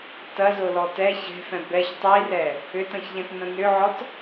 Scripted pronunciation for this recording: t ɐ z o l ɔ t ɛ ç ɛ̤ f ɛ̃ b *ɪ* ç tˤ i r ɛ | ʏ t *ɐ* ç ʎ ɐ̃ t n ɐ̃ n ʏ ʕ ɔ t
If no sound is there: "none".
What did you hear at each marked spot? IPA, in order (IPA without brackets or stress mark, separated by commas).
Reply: ɛ, ɐ̃